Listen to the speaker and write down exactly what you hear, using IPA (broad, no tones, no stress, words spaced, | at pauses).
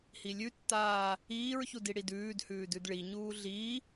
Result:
hilʲʉtːaː | iːɹçud iɽidʉːdhʉː dʉdɭiɲuː ɮi